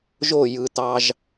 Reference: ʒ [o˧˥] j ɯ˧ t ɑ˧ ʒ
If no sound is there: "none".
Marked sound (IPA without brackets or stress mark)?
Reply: o˥˧